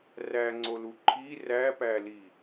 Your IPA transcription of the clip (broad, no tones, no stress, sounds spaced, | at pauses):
r æ ŋ͡ǀ o l u ǃʰ i r æ p æ l i